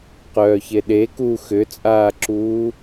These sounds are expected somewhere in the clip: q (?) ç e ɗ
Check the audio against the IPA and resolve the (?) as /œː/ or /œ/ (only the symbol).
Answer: œː